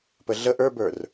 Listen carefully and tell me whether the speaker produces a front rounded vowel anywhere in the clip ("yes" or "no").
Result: no